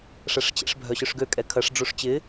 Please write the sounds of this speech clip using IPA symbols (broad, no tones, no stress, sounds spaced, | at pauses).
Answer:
ʂ ɐ ʂ t͡ɕ ɛ̰ ʂ bʱ œ ɕ œ ʂ ɡ ø kʼ ɛ kʰ ɐ ʂ ɖ͡ʐ o ʂ t͡ɕ ɪ